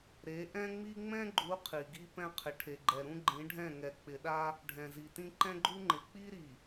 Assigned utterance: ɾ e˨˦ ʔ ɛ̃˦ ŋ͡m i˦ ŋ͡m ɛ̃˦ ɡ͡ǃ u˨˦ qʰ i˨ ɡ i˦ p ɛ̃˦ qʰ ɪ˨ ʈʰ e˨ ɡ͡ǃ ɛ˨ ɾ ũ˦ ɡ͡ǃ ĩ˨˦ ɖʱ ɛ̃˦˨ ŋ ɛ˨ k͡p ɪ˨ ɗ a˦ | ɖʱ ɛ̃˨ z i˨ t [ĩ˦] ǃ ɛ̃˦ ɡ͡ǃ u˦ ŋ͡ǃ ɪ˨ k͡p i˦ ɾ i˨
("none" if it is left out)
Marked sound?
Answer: ĩ˦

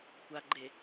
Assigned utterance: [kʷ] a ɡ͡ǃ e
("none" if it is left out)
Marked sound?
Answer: kʷ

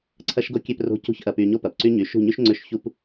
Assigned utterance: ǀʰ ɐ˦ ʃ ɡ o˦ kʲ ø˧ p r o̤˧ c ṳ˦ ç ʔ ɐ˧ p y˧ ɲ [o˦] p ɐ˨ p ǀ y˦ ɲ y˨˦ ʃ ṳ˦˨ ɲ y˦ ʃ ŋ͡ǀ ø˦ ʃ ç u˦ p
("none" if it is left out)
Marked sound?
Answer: o˦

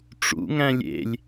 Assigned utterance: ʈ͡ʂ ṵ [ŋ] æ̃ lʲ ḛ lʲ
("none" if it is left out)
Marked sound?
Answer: ŋ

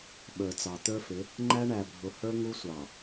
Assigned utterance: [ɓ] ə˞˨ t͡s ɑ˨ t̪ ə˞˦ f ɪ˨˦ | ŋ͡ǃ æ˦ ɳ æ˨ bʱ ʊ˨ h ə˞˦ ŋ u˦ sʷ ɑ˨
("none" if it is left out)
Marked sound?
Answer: ɓ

